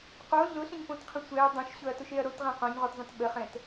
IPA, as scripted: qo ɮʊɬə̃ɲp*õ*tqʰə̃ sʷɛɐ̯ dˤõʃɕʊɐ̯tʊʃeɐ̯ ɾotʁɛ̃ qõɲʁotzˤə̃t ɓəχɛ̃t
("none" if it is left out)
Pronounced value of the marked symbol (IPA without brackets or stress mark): õ